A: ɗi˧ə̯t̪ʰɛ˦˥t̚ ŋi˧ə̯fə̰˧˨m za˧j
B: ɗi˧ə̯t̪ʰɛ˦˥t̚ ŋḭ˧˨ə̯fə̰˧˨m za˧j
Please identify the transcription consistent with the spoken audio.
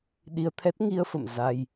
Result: A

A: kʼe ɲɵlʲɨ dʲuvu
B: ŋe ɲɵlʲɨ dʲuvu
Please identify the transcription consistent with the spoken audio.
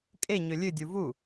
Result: A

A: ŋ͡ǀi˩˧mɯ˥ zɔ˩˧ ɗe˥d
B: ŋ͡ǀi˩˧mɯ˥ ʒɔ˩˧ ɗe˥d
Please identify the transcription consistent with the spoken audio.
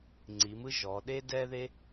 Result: B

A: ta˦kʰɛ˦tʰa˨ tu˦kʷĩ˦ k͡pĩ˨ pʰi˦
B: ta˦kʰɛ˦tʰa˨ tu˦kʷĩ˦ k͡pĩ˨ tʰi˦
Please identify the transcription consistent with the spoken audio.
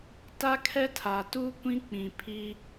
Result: A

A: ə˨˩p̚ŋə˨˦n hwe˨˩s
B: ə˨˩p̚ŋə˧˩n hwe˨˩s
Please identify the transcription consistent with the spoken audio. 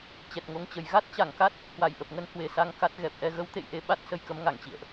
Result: A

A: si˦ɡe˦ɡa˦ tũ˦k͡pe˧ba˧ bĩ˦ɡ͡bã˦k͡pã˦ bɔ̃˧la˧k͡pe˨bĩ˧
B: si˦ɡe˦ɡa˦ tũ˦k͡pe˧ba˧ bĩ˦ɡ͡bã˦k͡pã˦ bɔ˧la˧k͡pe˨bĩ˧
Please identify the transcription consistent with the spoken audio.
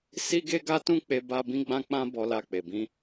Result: B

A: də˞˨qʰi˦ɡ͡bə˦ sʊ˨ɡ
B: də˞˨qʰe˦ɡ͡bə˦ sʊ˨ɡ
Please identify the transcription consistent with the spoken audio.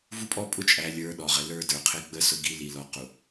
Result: B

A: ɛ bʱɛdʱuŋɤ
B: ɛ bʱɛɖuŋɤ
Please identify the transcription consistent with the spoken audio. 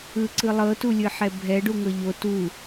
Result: B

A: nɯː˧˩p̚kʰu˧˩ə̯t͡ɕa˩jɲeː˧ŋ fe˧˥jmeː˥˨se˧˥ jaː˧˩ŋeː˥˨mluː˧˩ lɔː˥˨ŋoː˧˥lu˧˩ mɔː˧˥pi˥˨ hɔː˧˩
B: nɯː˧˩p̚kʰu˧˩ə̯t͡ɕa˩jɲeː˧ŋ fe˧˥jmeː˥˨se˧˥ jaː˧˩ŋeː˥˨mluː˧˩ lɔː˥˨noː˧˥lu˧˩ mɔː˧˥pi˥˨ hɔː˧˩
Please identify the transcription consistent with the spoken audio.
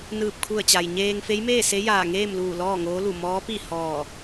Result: A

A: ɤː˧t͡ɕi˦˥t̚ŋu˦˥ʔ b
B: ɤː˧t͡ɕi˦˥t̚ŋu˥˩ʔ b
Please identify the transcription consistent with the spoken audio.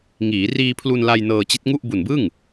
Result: B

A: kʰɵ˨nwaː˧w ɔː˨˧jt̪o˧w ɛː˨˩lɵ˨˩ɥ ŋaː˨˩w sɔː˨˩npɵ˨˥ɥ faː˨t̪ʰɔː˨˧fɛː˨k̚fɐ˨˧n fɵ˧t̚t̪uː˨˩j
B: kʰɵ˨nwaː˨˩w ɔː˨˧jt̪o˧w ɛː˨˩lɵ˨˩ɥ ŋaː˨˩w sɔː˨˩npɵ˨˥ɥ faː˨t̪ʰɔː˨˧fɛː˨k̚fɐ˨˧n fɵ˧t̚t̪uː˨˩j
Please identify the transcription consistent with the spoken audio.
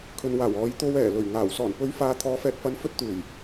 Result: B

